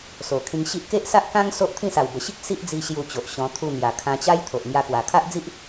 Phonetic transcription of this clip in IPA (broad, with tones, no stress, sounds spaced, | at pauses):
s o˨˩ kʰ ĩ˧ ŋ ɕ i˦ ʔ k e˦ ʔ s a˦ ʔ k ã˦ ŋ s o˦ ʔ t̪ʰ ĩ˥˧ s a˨˩ w b ə˨˩ ɕ i˦ k̚ s i˦ ʔ d͡z i˧ ɕ j u˧ t͡ɕ o˨ ʔ ɕ ɔ̃˧ t̪ʰ u˧ n̪ j a˨˩ kʰ ã˧ t͡ɕ a˦ j t̪ʰ o˨ ʔ ŋ j a˧ k w a˨˩ kʰ a˦ ʔ d͡z i˦ ʔ